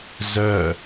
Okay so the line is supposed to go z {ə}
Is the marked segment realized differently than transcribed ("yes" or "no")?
yes